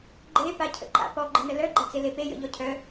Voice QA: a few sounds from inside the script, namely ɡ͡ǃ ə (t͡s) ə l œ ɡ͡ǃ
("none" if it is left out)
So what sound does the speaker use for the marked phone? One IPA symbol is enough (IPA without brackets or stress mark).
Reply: n